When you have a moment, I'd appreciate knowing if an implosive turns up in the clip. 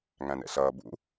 no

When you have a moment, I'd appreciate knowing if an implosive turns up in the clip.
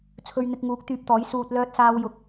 no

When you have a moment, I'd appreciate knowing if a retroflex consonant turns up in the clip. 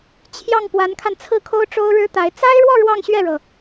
yes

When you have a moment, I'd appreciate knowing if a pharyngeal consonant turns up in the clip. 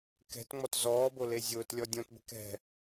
no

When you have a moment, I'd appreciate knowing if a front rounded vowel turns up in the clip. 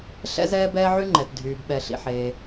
yes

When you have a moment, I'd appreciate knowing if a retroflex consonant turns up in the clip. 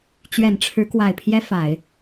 yes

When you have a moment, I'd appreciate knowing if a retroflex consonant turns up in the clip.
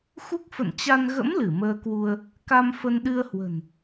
no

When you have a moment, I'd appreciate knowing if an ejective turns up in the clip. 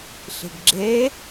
no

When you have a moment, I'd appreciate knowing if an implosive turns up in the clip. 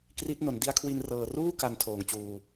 no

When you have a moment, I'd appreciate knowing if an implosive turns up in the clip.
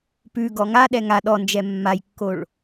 yes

